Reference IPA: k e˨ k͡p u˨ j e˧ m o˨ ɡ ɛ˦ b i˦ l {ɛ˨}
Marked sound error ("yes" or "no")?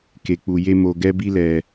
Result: no